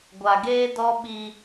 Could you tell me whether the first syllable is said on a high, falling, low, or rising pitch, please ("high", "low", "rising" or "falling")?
low